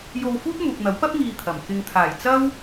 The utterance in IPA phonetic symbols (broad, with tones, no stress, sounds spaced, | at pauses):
j o˧ w f uː˥ t̚ m uː˨ k̚ n̪ ɐ˨˥ w p ɐ˥ p̚ ŋ iː˧ t̪ʰ ɐ˨˩ m k ɪ˨ ŋ t̪ʰ aː˨˩ j t͡s ɐ˥ w